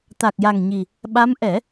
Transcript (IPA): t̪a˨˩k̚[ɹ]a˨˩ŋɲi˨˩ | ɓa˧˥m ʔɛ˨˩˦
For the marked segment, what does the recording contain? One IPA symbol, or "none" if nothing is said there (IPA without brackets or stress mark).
j